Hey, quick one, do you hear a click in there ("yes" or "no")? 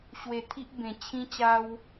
no